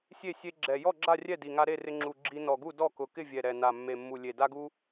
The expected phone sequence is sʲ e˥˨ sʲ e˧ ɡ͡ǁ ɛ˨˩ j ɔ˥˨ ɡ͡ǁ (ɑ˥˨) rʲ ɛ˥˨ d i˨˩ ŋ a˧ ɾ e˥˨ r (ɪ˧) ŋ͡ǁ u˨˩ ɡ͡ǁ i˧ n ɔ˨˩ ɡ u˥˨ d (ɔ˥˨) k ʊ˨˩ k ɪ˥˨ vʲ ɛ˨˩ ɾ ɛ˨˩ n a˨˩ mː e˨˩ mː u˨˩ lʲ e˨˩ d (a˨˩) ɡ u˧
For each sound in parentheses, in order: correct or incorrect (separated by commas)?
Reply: incorrect, correct, correct, incorrect